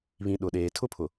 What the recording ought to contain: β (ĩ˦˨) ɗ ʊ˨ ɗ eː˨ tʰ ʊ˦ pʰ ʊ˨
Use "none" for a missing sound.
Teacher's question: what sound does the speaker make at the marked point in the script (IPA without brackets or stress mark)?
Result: ĩ˨